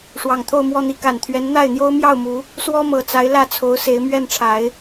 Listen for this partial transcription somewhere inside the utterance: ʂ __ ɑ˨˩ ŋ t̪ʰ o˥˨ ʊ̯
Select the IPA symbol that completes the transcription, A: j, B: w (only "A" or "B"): B